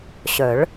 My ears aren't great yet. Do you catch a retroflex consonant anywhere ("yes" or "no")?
yes